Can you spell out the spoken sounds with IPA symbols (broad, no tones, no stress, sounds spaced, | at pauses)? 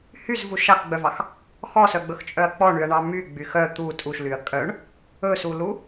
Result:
h y z v u ʃ ɑ x ɡ͡b œ v ɑ x | x ɔ s œ ɡ͡b ɵ x t͡ʃʼ œ ɐ̯ k͡p ɔ ɳ y ɐ̯ ɳ ɑ m y ɡ͡b y x œ t̪ u tʼ u ʃ l y ɐ̯ kʼ œ ɳ | ɵ s u l u